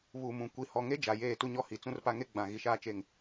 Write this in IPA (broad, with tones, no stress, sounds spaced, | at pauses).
β u˨ m ũ˨ kʷ i˨ h ɔ˨ ŋ e˦ d͡ʒ a˨ j eː˦˨ t u˦ ɲ ɔ˦ h i˨ t͡s ũ˦ r p a˦ ŋ e˦ ɡ͡b ã˨ ɣ i˨ ʃ aː˦ t͡ʃ e˦˨ ŋ